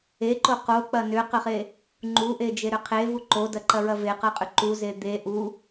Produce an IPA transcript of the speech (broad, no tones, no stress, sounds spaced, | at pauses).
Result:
e ǃ o q o k͡p ɐ n ʏ q ʏ χ e | ŋ͡ǃ u ʔ e d͡ʒ e ɾ ʏ qʰ e v u ǃ o d ɐ ǃ ɐ ɹ ɐ v e q ɐ qʼ ʏ ǃ u z e d̪ e ʔ u